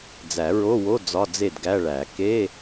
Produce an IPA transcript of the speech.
d͡z æ˨˩˦ ɹ o˧˥˧ w o˧˥˧ d͡z ɒ˧˥˧ d͡z e˥˩ d ɡ æ˧˥˧ ɭ æ˨˩˦ k e˧˥˧

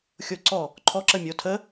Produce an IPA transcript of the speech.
xʲ o ǀ ɔ | ǃʰ ɔ ǁ ə mʲ o tʰ ə

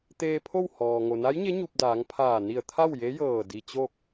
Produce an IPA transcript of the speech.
t̪ eː˧ pʰ o˥˨ w h ɔː˩ ŋ o˩ n a˧˥ j ɲ e˧˥ ɲ u˧ p̚ d aː˩˧ ŋ pʰ aː˧˩ n i˧˩ ə̯ t̪ʰ a˥˨ w j e˧˥ j ɤː˧˩ d i˧ t͡ɕ o˥˨ k̚

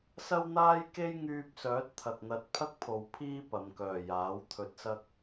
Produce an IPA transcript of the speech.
s ɐ˥ w n̪ aː˥ j k e˥ j ŋ yː˧ p̚ s œː˨˥ t̚ t̪ʰ ɐ˨ k̚ n̪ ɐ˨˥ t̚ pʰ ɐ˥ k̚ pʰ o˨˧ w pʰ iː˥ p ɐ˨˧ m k œː˨ j aː˨˥ w t̪ʰ ɵ˧ t̚ s ɐ˥ k̚

